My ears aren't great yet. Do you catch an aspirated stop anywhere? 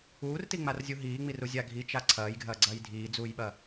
yes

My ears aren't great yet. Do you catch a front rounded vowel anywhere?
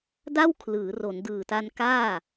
no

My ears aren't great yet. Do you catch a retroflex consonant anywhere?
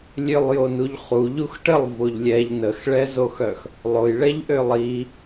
yes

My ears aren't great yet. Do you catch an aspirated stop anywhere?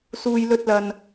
no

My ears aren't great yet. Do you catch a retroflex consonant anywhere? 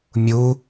no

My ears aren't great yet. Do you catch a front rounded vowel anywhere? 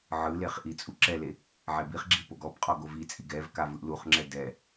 no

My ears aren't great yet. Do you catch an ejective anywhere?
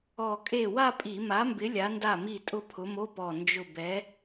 yes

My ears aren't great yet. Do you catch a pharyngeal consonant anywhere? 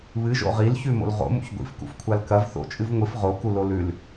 no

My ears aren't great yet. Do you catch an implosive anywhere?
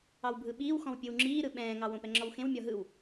yes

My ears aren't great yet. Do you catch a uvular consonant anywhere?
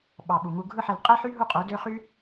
yes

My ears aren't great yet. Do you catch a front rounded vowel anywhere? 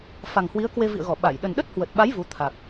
no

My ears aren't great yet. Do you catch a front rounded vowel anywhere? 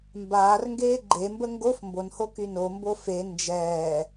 yes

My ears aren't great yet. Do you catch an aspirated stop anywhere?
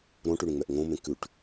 no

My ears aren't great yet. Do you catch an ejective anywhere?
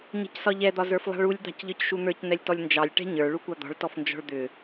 no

